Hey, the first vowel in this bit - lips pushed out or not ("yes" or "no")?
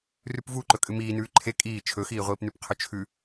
yes